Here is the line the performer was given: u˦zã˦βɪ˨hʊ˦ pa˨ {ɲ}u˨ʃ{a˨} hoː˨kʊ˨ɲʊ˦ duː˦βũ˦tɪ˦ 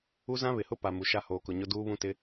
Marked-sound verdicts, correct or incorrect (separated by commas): incorrect, incorrect